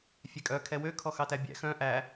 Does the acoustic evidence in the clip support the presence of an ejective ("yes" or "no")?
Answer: yes